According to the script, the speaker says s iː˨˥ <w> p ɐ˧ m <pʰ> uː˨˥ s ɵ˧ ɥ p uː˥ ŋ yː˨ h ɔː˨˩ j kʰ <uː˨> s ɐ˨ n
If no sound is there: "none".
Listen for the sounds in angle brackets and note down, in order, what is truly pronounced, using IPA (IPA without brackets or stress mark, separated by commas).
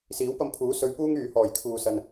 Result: w, pʰ, uː˨